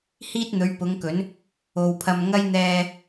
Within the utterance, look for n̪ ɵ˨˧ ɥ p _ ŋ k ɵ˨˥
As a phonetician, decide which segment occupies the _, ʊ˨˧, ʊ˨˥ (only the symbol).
ʊ˨˧